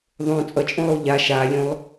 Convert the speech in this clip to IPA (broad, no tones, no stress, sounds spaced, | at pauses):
ðˤ õ t͡sʼ ʌ t͡ʃʼ õ lˠ o ʎ a ʃ a lʲ õ lˠ